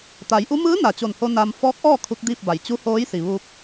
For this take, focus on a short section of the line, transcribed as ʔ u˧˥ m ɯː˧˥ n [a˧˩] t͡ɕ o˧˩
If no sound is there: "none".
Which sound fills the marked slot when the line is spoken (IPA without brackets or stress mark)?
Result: a˧˩